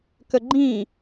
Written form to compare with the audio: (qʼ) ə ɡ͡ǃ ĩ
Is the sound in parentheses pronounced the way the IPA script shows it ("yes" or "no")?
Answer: no